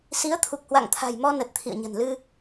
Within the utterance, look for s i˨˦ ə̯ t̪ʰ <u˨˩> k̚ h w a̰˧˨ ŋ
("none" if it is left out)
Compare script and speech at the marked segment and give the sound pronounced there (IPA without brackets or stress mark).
u˨˩